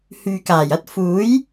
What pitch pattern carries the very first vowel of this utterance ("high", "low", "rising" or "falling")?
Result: low